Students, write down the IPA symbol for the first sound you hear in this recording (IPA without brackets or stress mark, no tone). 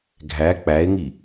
ɡʱ